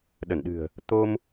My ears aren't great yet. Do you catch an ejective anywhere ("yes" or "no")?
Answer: no